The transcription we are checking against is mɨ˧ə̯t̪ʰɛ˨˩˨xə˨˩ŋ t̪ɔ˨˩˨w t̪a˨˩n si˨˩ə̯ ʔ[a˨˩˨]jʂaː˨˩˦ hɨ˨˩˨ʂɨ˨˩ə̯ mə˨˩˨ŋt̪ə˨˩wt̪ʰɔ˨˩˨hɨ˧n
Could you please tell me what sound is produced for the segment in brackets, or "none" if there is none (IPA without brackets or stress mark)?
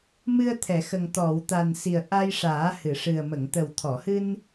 a˧